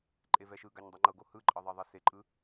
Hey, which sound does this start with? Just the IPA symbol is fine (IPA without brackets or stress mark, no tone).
ǃʼ